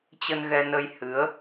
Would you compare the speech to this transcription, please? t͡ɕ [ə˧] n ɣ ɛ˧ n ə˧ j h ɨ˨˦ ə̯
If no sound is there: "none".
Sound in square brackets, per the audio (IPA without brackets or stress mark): ə˧